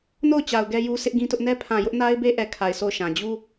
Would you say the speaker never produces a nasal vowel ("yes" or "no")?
no